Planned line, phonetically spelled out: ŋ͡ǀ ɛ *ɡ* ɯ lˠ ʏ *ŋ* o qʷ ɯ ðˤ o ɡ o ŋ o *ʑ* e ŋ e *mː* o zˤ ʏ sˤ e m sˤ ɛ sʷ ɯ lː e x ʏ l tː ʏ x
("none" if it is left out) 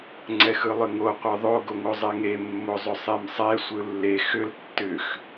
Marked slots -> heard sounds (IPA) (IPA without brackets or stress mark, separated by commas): x, ŋ, zˤ, mː